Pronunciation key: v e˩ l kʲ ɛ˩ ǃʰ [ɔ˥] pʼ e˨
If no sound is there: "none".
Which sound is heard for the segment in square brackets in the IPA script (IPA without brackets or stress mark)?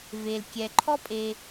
ɔ˥